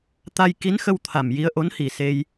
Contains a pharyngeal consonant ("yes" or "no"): no